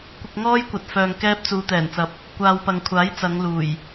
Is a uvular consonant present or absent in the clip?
absent